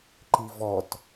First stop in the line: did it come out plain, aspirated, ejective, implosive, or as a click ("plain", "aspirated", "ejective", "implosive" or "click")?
click